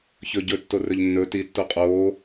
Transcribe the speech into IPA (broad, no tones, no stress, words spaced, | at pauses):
çɵɟɵtːo rɵʎnːɵ titːo qʼoː